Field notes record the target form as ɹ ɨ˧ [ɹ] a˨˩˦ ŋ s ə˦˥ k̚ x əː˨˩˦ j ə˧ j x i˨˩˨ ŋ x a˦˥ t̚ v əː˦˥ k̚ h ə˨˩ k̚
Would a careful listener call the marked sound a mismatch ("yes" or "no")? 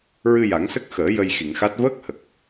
yes